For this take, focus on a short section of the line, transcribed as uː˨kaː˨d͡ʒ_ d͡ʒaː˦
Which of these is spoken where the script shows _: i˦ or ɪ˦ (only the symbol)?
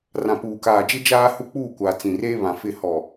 ɪ˦